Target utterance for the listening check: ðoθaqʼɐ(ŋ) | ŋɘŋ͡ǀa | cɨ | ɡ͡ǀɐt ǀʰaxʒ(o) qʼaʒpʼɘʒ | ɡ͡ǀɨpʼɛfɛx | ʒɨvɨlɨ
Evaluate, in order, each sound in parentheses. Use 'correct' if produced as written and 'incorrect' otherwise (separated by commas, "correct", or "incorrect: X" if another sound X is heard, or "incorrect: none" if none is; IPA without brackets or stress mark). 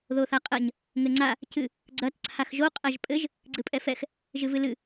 incorrect: ɲ, correct